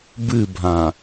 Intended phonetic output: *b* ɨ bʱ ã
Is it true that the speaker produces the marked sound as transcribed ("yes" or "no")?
yes